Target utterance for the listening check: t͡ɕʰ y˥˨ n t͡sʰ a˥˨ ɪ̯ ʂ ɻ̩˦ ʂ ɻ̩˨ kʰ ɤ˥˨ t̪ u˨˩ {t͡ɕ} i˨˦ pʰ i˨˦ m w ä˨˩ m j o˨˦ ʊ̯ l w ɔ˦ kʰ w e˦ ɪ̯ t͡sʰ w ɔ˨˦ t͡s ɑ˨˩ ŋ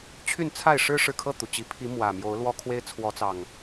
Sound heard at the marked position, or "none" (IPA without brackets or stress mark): t͡ɕ